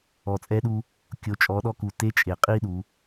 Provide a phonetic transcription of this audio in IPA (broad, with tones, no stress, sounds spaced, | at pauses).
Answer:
ɔ˩ t͡sʼ ɛ˧ ɗ u˧ | kʲ o˩˧ t͡ʃʼ ɔ˩˧ ɗ ɔ˧ k u˩ t e˧˥ t͡ʃʼ e˩ qʼ i˥ ɗ u˩˧